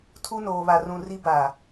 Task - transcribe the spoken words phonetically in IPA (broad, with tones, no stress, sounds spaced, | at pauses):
tʰ u˦ n oː˨ β a˨ r ũ˨ r i˦ b aː˨